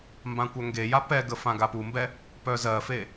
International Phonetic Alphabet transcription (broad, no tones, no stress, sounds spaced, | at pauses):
m b ã kʷ œ ŋ ɡ e j a p ɛ ɡ ə f ã ɡ a p u m b ɛ | p œ z ɜ f e